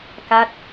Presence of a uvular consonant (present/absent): absent